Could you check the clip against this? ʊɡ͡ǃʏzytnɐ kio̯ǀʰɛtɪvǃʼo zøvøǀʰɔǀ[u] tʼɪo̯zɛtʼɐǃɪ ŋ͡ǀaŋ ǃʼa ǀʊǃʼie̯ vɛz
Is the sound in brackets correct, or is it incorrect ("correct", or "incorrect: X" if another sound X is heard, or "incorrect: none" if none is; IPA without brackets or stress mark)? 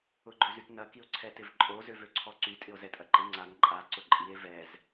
incorrect: y